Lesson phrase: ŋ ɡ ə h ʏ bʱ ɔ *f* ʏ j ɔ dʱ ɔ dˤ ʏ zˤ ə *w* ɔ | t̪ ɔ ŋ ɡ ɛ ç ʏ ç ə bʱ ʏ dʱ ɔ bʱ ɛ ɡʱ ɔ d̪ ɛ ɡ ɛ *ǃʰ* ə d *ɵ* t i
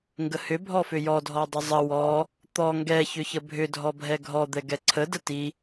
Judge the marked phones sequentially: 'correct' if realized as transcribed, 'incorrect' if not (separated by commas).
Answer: correct, correct, incorrect, incorrect